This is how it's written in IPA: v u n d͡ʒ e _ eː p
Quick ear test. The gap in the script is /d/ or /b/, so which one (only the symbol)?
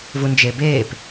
b